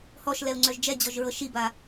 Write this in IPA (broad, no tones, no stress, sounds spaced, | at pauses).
h ɔ ʃ l ɛ u̯ ŋ͡ǀ œ ʒ d͡ʒ ɛ d͡ʑ ɔ ʒ ɹ ɤ ʃ i b a